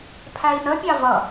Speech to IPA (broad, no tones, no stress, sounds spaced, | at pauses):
pʰ æ i̯ n ə pʲ ɑ v ʌ